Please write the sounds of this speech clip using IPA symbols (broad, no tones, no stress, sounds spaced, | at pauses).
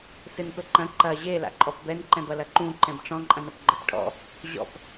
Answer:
s ɨ n p ɘ ǃ ɐ̃ ǃ ɐ ʑ e l a̰ ǃʼ ɔ p b ɛ n ǃ ɛ̃ b ɐ l ɐ ǃ ũ ǃ ɛ̃ b ʈ͡ʂ ɔ̃ ǃʼ ɐ̃ n ɐ p ɡ͡ǃ ɘ p ʈʰ ɔ̰ | ʑ ɔ̰ p